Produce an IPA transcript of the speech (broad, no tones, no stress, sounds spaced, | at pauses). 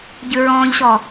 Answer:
ɟ ʉ ɹ ɔ̃ː ʎ ɕ ɔ